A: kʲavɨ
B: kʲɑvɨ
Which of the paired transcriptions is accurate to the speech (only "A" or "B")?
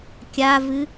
A